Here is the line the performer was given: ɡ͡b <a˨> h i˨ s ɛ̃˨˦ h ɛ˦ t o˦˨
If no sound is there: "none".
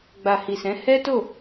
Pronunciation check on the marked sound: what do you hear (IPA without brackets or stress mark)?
a˨